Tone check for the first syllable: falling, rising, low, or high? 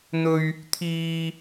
high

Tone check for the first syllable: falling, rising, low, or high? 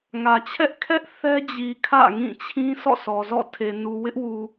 low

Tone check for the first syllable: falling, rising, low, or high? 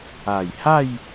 low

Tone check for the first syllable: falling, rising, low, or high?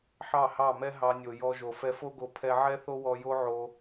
falling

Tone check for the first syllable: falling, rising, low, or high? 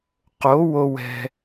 rising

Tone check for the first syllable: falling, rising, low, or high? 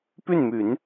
falling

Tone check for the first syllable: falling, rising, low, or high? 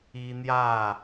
high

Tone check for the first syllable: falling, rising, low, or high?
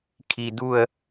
low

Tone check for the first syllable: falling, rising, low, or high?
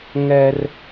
high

